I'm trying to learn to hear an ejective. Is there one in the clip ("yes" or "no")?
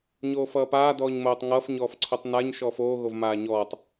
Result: no